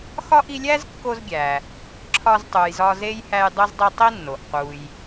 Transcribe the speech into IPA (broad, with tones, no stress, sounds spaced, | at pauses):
x ɒ˥ ʔ i˦ lʲ æ˥ z kː o˦ z ɡʲ æ˩ | ǁʰ ɒ˦ z tˤ u˨ j z ɒ˦ z e˥ j h æ˦ j dˤ o˥ z dˤ i˦ tˤ i˥ nː o˩ ʔ q u˩ j